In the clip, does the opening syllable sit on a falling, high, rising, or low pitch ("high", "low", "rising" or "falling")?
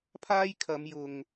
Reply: high